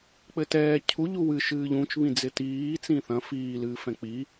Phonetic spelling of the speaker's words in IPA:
k͡p ɘ t ɛː cʰ u ʎ u w ɨ ʃ ɨː ʎ ũ t͡ʃ β ĩ d͡z ɪ t iː t͡s ĩ θ ɐ̃ f iː l ɨː f ɛ̃ k͡p i

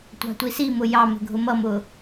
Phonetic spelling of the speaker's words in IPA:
tʷ ɑ̤ tʷ i s i m ʊ j ɑ m ə̤ ɡʱ ʊ m ʌ m ʊ

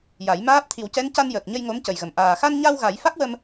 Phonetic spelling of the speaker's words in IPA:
j a˨˩˦ j m aː˦˥ p̚ t̪ʰ i˨˩˦ w c ɛ˧˥ n c a˧ n j əː˨˩ k̚ ɲ ə˧ j ŋ o˧˥ m c ə˨˩ j ɣ ə˨˩ m ʔ aː˨˩ x a˧ n ɲ a˧ w ɣ a˨˩˦ j f a˦˥ k̚ w ə˧ m

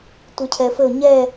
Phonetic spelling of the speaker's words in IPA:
tʷ i cʰ ɛ f ɘ ʊ̯ ɲ ɛ

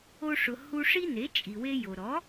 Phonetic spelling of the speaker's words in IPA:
o˧ ʂ ʊ˩ h u˧ ʂ i˥ n e˩˥ t͡ʃʼ i˩ w e˧ j o˩ ɾ ɔ˩˥

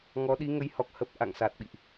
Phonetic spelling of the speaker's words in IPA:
ŋ ɔ˨˦ ɗ i˨˦ ŋ ə˨˦ j h ɔ˨˩ k̚ h ə˦˥ p̚ ʔ a̰˧˨ ŋ s a˨˩ t̚ ɓ ḭ˧˨ ʔ

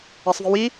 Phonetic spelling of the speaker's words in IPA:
a sˤ v i w i

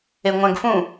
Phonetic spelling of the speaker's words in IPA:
e ŋʷ æ̃ ɡ f ũ

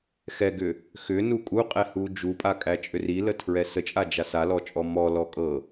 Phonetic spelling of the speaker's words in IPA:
x ɛ ɡ ʏ | x ʏ n u kʼ u qʼ ɛ h u d͡ʒ u pʼ a kʼ æ t͡ʃʼ ʏ r i l ə tʰ ɹ ɛ s ə t͡ʃʼ a d͡ʒ a s a l ɔ t͡ʃʼ ɔ m ɔ l ɔ kʼ ɤ

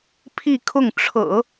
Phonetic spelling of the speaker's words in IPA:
pʰ i˥˧ kʰ ʊ˥˩ ŋ ʈ͡ʂʰ ɤ̰˨˩˦

